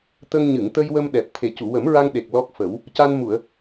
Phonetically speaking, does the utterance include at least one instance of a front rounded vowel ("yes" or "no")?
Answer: no